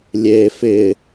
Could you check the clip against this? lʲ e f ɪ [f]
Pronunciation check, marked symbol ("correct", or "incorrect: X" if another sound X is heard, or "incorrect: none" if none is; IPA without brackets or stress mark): incorrect: none